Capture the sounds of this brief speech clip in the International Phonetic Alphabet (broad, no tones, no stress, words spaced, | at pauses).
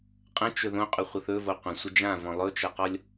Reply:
qʼə̃ t͡ʃɵðõqʼɵχʷə θɵvo qʷə̃sʷə d͡ʒã vɔ̃lˠɵt͡ʃʌqɔlʲ